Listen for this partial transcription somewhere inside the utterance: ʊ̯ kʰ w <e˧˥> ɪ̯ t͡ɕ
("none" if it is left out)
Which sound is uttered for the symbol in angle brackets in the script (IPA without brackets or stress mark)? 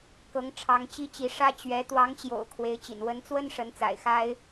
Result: e˧˥